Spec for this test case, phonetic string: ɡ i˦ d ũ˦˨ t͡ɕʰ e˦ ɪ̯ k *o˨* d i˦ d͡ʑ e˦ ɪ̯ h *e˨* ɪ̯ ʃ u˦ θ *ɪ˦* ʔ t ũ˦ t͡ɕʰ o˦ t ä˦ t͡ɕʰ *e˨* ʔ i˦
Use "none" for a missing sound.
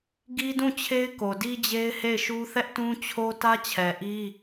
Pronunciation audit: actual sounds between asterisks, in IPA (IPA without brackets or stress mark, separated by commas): o˨, e˦˨, ɛ˦, ɛ˨